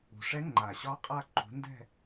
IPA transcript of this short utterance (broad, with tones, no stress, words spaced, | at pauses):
ṳ˨˩ ʂɛ˦˥ŋ͡ǃa˨˩ɕɒ˦˥ qʼa˥˧ǃṳ˨˥ ndɛ̤˥˧